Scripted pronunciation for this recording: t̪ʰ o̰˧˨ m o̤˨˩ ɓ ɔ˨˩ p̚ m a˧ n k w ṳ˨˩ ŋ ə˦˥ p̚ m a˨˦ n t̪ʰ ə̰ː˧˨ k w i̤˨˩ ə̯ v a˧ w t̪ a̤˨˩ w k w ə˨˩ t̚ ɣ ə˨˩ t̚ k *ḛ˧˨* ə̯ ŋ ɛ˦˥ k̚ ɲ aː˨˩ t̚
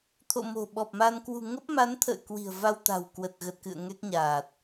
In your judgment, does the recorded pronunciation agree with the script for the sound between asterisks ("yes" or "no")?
no